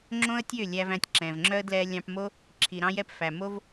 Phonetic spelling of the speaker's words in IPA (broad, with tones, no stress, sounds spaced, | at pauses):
ŋ͡ǁ õ˦ ə̯ tʲ ø˦˨ lʲ æ˧ v æ̃˧ tʲ ǁ ɛ̃˨ v ŋ͡ǁ œ˦ ə̯ d l ɛ˧ lʲ ɑ̃˧ p m o˦ | ǁʰ i˨ ɾ ɑ̃˦ j ɛ˦ p f æ˨ m o˦ v